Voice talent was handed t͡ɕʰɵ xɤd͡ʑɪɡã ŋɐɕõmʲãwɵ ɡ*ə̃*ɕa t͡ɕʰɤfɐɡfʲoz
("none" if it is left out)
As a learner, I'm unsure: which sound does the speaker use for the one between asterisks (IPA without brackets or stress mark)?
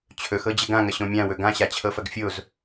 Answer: ã